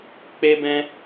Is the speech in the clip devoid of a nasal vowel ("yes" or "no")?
no